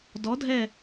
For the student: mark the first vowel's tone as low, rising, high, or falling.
rising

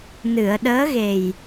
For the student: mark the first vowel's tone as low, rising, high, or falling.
low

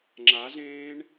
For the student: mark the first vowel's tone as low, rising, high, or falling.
rising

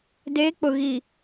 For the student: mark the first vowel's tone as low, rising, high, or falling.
rising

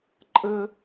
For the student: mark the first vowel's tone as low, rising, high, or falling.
high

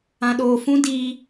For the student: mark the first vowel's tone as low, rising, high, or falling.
low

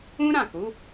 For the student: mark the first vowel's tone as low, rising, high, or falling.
high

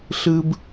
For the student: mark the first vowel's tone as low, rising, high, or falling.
high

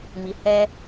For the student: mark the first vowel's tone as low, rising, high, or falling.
low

